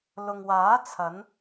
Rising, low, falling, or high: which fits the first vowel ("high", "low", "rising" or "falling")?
low